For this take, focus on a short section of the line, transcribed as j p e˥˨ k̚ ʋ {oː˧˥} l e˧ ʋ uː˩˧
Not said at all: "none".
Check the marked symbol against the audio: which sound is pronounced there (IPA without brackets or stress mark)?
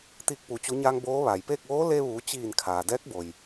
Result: oː˧˥